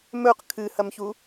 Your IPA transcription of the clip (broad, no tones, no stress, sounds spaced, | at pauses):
m ɵ q kʰ ɨ h ɐ m ç u